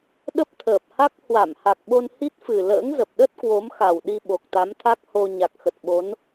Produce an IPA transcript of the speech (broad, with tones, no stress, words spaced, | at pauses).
ɗə˦˥p̚t̪ʰəː˨˩p̚ha˦˥k̚ hwa˧˩mha˨˩k̚ɓo˧n hi˦˥t̚fɨ˨˩ lə̰ː˧˥ŋzə˨˩p̚ ɗə˦˥t̚ kwo˨˦mxa˨˩wɗi˧ ɓo˨˩k̚t̪a˨˦mt̪ʰa˦˥k̚ho˧ ɲa˨˩k̚xə˨˩t̚ɓo˨˦n